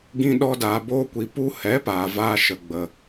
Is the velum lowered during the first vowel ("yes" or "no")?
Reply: yes